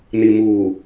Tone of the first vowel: low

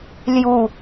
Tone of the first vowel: low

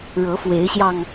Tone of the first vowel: rising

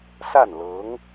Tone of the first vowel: falling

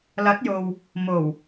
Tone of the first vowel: rising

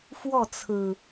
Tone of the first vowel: falling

